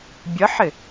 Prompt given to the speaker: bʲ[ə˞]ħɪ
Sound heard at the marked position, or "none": ə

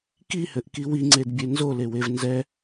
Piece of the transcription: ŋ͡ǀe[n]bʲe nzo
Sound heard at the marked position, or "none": d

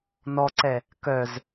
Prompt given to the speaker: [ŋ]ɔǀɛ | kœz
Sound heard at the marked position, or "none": n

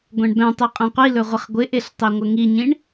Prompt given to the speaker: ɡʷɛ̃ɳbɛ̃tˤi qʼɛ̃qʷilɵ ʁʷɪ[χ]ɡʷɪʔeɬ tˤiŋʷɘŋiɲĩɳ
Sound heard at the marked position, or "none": χ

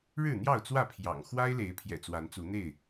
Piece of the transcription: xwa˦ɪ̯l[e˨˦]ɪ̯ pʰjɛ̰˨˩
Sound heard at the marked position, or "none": e˨˦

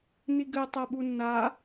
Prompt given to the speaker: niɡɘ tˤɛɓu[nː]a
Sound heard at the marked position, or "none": nː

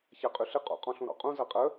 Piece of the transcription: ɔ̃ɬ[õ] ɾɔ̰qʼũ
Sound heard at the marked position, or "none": ũ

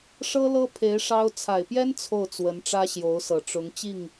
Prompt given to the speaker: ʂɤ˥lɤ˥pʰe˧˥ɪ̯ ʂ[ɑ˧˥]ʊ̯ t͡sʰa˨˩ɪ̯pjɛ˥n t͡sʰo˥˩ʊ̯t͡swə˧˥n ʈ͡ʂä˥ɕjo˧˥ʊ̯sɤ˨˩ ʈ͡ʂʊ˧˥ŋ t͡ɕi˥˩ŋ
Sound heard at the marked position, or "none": ɑ˥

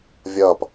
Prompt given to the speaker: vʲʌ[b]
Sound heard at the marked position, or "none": p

